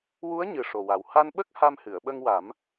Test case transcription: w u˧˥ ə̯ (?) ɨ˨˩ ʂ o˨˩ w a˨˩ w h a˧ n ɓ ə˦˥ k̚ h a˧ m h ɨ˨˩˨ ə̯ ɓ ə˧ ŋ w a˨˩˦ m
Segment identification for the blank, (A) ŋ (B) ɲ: B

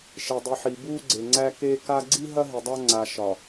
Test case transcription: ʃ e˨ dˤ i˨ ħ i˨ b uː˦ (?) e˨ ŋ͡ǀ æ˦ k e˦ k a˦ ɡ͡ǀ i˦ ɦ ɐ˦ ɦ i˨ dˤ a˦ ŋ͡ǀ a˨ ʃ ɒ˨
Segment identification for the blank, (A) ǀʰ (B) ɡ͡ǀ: B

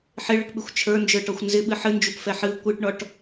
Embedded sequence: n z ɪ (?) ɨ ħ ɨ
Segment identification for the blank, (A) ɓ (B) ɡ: A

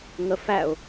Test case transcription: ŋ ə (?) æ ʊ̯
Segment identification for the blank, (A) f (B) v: A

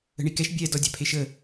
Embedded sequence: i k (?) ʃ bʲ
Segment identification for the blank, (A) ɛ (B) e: A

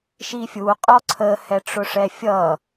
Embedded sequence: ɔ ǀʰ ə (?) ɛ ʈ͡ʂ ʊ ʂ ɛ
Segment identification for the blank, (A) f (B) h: B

